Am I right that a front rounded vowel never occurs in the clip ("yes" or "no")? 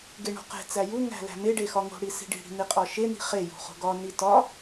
yes